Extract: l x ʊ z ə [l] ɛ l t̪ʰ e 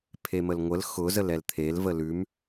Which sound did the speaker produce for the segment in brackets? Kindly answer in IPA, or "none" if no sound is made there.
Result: l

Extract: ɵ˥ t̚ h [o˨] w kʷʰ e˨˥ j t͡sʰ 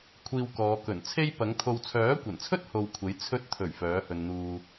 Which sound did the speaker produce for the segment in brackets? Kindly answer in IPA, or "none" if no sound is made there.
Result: o˧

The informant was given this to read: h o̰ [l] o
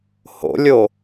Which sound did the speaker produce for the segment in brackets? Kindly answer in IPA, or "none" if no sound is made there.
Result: lʲ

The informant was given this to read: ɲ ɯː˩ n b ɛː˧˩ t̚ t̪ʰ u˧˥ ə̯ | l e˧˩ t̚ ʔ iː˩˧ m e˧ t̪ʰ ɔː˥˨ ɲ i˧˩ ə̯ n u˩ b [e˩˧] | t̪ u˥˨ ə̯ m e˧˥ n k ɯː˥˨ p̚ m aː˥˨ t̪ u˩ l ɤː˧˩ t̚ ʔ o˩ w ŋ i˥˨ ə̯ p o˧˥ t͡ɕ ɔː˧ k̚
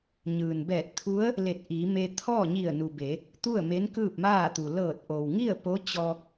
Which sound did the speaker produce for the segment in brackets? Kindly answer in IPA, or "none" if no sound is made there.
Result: e˩˧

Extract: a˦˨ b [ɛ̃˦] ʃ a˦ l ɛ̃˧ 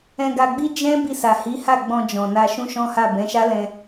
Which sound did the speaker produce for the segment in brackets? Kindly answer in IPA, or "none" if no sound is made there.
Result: ɛ̃˨˦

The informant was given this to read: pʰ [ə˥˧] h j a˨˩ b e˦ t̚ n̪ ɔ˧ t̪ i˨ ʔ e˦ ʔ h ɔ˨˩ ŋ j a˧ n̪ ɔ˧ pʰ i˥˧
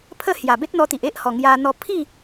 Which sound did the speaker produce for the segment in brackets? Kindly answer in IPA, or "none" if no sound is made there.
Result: ə˥˧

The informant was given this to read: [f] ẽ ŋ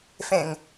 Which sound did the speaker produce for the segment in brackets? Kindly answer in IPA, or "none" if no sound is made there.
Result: f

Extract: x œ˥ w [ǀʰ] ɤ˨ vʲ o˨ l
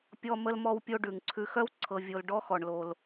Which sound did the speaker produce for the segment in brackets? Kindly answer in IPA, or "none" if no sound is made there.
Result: ǀʰ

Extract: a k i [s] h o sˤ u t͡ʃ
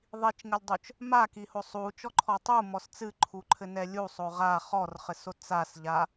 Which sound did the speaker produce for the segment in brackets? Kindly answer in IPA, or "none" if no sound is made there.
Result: none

